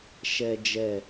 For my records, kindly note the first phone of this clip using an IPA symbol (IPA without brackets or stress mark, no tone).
ʃ